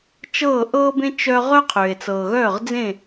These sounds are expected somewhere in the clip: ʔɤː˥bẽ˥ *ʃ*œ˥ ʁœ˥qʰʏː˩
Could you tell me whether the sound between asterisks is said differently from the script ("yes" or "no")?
yes